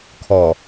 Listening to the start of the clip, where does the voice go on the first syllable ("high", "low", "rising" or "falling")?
low